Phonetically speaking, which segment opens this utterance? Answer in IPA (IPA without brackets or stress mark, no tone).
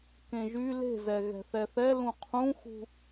k